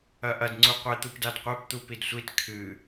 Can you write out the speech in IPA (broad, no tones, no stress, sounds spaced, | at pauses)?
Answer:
ɐ ʔ ɐ d ŋ͡ǀ u qʷ e t̪ u p d a d qʷ e p t̪ u p i d sʷ i t kʰ ɨ